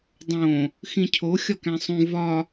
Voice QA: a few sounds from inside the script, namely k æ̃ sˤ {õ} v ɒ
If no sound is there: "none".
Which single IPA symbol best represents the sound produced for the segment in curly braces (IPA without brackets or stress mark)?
ũ